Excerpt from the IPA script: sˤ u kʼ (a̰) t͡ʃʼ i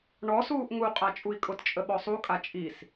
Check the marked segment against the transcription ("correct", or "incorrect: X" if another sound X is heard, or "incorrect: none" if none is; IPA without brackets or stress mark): incorrect: a